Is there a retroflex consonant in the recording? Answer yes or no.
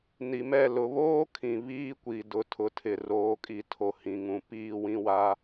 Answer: no